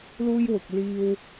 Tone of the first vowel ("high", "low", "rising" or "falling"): high